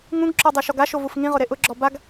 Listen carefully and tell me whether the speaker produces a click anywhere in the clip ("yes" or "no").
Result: yes